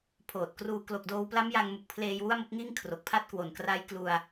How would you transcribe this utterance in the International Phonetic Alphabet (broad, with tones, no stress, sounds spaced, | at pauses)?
pʰ oː˨˩ t̚ k r uː˧ k l o˨˩ k̚ d oː˧ w p l a˦˥ m j a˧ ŋ m u˨˩ k̚ pʰ l eː˧ j w u˥˩ a̯ m o˦˥ k̚ ŋ iː˥˩ ŋ kʰ r o˨˩ k̚ pʰ a˥˩ t̚ k w o˨˩ n k r a˦˥ j k l u˧ a̯